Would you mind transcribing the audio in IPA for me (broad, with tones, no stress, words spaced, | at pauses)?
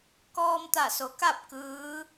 kɔː˧mt̪a˧˩so˩˧ ka˥˨p̚ kɯː˧˥